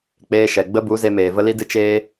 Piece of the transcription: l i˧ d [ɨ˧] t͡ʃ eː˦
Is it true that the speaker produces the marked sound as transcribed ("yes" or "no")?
yes